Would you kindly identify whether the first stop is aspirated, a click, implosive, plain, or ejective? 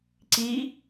click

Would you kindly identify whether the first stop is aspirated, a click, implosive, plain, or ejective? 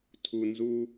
aspirated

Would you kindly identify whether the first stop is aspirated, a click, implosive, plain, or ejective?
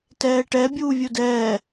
plain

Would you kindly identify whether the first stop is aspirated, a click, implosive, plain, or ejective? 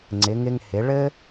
click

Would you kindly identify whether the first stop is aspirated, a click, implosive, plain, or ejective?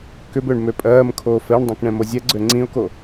plain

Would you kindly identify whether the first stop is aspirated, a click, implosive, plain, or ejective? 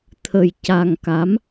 aspirated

